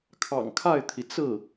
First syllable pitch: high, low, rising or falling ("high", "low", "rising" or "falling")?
low